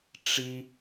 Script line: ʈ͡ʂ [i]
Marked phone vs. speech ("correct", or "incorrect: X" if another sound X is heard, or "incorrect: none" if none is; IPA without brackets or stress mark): correct